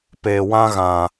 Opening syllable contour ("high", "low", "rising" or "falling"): low